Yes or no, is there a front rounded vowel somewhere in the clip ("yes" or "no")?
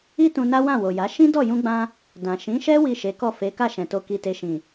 no